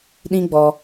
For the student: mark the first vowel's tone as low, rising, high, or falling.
high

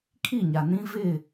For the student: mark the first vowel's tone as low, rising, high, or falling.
falling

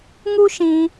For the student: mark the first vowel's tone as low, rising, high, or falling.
high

